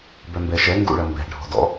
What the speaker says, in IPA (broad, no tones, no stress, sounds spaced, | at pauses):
b œ m b ɛ ʃ ɛ ŋ ɡ ṵ ɭ ɐ m b ɛ̤ ɖʱ ɔ̤ d ɔ̰